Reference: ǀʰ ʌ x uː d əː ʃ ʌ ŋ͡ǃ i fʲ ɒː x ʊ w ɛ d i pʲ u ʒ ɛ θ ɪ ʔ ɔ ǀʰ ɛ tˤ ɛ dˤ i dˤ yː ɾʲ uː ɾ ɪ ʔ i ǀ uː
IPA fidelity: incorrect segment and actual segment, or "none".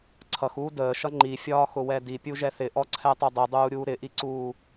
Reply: yː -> uː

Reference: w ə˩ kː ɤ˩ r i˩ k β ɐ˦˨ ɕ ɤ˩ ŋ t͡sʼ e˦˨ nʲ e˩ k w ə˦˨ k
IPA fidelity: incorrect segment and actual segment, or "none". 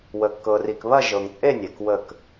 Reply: ɕ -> ʒ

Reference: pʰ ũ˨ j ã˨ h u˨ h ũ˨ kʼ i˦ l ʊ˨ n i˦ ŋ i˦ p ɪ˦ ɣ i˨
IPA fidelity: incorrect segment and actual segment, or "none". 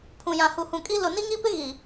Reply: none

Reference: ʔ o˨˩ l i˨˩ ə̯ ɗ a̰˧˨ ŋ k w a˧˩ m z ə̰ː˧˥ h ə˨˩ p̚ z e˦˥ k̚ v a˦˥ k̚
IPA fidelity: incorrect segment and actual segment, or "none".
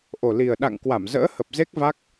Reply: none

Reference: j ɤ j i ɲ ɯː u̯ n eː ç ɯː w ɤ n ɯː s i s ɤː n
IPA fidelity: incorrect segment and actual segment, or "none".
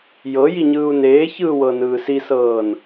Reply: none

